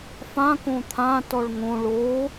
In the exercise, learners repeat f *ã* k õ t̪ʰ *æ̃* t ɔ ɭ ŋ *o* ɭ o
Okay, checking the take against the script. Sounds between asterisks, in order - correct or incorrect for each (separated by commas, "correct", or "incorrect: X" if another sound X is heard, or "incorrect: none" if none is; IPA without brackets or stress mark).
correct, incorrect: ã, incorrect: õ